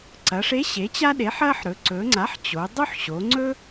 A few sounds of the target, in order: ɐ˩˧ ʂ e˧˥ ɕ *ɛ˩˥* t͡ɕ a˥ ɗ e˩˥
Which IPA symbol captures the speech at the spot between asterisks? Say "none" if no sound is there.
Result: e˩˥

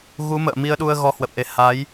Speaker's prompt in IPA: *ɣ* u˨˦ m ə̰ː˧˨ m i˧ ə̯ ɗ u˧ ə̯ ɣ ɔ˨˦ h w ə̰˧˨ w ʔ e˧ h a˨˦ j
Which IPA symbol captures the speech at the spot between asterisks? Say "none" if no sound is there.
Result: ɣ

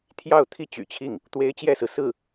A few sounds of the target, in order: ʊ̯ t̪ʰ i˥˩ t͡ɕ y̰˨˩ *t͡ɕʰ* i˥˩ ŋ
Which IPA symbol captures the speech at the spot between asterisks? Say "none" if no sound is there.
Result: t͡ɕʰ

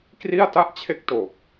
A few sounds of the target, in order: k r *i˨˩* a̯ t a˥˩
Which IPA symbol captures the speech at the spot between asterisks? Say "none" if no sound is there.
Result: i˥˩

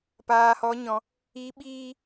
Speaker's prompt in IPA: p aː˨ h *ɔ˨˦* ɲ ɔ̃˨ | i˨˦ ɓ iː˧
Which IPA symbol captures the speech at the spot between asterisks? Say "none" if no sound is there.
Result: ɔ˨˦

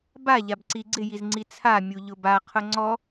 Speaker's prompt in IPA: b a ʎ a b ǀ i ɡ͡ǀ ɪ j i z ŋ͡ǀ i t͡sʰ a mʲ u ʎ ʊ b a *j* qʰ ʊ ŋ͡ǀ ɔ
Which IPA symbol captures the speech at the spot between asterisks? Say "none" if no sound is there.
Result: none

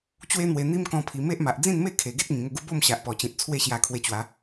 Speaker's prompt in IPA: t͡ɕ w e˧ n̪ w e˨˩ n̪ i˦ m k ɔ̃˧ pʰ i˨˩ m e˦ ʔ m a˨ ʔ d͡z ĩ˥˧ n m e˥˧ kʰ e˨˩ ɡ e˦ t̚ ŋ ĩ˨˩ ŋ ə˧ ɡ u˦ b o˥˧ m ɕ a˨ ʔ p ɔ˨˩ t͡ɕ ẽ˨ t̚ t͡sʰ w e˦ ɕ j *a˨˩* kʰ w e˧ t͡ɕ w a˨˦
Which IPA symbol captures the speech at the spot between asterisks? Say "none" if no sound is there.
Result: a˧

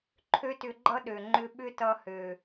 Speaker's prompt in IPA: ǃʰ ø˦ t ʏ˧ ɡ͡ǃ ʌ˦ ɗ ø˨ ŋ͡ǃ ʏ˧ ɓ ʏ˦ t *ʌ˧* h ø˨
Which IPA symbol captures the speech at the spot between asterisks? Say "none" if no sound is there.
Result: ʌ˧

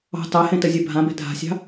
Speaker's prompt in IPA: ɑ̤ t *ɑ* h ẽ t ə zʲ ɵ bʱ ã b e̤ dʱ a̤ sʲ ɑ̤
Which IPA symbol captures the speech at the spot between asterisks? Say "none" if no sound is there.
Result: ɑ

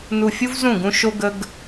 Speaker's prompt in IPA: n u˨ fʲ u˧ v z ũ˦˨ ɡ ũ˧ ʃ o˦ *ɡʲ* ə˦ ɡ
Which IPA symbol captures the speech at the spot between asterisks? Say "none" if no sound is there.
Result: ɡ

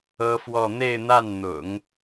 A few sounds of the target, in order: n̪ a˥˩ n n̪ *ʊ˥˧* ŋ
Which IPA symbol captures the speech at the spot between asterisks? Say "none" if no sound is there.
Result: ʊ̰˨˩˦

